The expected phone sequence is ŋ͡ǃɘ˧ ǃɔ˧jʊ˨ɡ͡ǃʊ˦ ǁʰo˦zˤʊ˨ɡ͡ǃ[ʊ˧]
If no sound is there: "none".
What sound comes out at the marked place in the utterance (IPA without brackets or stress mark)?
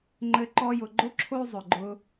ʊ˧